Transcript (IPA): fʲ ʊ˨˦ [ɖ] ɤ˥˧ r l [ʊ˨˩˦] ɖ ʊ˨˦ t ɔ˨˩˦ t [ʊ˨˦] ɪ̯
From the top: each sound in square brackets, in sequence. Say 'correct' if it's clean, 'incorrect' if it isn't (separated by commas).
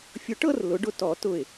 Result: incorrect, correct, incorrect